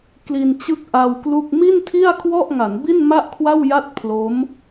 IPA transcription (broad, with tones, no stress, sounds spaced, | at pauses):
k l i˧ n t͡ɕ ɯ˥˩ k̚ ʔ a˧ w k l u˥˩ k̚ m i˥˩ n tʰ i˥˩ a̯ kʰ w ɔ˥˩ ʔ ŋ a˩˦ n b i˥˩ n m a˥˩ ʔ kʰ w a˥˩ w j a˥˩ t̚ pʰ l o˦˥ m